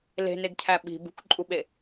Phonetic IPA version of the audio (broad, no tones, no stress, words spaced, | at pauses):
le̤neɡcʰæ ɓi̤ bṳkǃʼuɓe